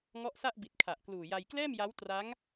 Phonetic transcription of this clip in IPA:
ŋ ɔ˦˥ ʔ s a˥˩ ʔ b i˨˩ t̚ kʰ a˨˩ ʔ k l uː˨˩ j a˧ j k l ɛː˥˩ m j a˦˥ w t r a˦˥ ŋ

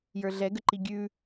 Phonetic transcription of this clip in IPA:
j ə˞ ɮ ɛ ɡ ə ǃ i ɡʲ ʉ

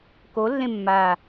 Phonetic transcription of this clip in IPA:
k o lː ẽ mː a

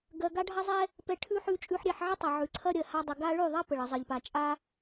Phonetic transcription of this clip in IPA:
ɡ ɜ˨ ɡ a˦ ɖʱ ɐ˦ zˤ ɛ˦ | p ɛ˧ ʈʰ ʉ˦ ħ ʉ˧ t͡ʃʼ ʉ˧ ħ ɾʲ ɛ˦˨ ħ ʕ ə˦ tˤ ɐ˨ ʕ ʉ˨ ǀʰ ɐ˦ ɾʲ ɜ˨ h a˧ dˤ ə˨ ɡ a˦ ɭ ʉ˦˨ ðˤ ɐ˦ p ə˨ ɭ ə˨ zˤ ɜ˨ ʎ p a˨ t͡ʃʼ a˦

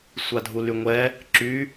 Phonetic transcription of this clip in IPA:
sʷ a dʱ u l y ŋʷ ɛ | ǁ y

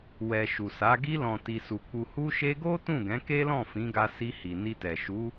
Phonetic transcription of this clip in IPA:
w ɛ˨ ʃ u˨ s a˨˦ ɡ i˧ l ɔ̃˨ t i˨ s u˨ k͡p u˨ h u˧ ʃ e˧ ɡ o˦ t ũ˦˨ ɡ ɛ̃˨˦ k e˦ l ɔ̃˦˨ f ĩ˨˦ ɡ a˧ s i˧ h i˨ n i˧ t ɛ˨ ʃ u˨˦

